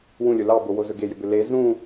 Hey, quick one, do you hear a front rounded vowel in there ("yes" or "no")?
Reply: yes